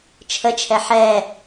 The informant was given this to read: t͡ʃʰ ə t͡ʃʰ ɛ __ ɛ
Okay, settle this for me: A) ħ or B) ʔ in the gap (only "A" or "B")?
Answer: A